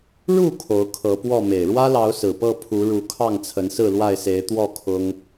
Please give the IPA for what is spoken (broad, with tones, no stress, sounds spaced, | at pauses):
ɻ u˥˨ kʰ o˨˦ ʊ̯ kʰ ɤ˨˦ p w ɔ˥˨ m e˨˩ ɪ̯ ɻ w ä˦ l ɑ˨˦ ʊ̯ s ɹ̩˨˩ p ɤ˥˨ pʰ u˨˦ ɻ u˨˦ kʰ ɑ˥˨ ŋ t͡sʰ ə˨˦ n s ɹ̩˥˨ l w a˥˨ ɪ̯ s e˨˦ ɪ̯ t̪ w ɔ˥˨ kʰ ʊ˦ ŋ